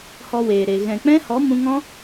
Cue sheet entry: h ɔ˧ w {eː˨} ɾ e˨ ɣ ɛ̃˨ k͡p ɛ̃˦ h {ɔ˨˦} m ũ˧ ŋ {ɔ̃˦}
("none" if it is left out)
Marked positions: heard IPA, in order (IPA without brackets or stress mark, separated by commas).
eː˨, ɔ˨˦, ɔ̃˦